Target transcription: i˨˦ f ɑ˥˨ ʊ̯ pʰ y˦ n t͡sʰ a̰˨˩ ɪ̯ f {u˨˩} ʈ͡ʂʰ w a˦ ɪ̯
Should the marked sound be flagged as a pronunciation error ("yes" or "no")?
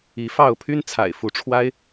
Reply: yes